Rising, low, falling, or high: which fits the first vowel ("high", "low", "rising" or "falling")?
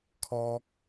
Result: high